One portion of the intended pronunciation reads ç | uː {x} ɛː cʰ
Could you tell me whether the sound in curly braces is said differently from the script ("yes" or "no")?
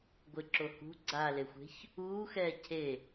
no